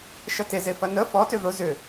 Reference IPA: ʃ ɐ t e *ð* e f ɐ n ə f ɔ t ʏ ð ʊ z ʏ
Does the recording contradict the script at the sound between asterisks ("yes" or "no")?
yes